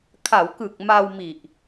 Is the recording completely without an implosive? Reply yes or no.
yes